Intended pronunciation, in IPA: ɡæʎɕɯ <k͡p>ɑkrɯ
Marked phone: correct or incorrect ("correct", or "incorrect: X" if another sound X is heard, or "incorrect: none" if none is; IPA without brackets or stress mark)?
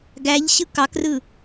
incorrect: k